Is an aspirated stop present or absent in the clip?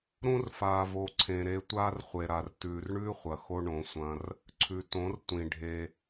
present